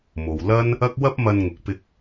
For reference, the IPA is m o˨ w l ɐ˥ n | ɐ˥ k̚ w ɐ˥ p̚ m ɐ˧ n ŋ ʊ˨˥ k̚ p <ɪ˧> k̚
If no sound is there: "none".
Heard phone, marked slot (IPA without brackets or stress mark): ɪ˧